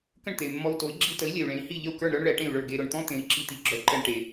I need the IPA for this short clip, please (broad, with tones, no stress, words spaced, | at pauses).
kə̃˥˩ɳt̪e˩y̯ mːɔ˧u̯to˩˥i̯ ɡ͡ǁi˧tə˩˥i̯ lʲɛ˩y̯ɭẽ˩˥i̯ hi˥˩ʎə˥˩u̯kə˞˥˩ɳɾə˞˥ɳ ɭɛ˩˥ʈẽ˥˩y̯ɭə˞˥˩ ɡe˧ɾʊ˩ɳt̪ɔ̃˥t̪ẽ˩˥i̯ ǁi˧t̪i˩˥ɡ͡ǁœ˩˥ǃɛ˧ɳ ʈe˩